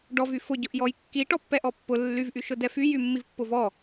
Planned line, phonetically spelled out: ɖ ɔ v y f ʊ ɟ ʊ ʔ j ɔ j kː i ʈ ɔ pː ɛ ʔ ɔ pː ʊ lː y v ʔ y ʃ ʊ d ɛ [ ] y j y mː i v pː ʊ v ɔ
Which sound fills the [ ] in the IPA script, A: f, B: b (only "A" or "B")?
A